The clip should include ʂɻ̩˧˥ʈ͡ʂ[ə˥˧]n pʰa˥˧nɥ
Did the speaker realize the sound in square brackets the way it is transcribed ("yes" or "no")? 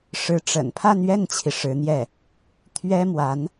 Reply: no